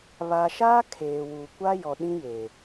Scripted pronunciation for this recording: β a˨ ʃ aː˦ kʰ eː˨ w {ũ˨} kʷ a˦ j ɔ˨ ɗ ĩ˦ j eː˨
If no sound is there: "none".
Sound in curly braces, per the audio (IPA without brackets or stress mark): u˨